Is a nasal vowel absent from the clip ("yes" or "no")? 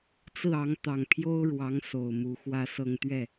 yes